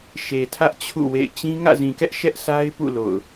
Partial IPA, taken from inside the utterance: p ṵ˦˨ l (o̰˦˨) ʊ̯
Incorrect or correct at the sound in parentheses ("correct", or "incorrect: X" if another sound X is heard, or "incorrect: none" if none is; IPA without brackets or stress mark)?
correct